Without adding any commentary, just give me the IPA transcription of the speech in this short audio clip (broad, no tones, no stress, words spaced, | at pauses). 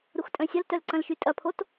ɾuxtʼœ̃sʲɐltœl ǀɐ̃lʃytʼɐpʰot